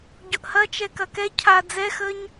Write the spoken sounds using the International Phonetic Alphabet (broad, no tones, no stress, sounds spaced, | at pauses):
ɟ ʊ ʔ h ɐ t͡ʃ ɛ k ɐ k ɛ cʰ a d͡z ɛ x əː ɲ